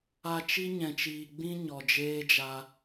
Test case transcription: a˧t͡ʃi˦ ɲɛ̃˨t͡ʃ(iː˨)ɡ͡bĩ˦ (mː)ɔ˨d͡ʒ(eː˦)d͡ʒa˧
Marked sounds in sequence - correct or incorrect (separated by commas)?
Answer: correct, incorrect, correct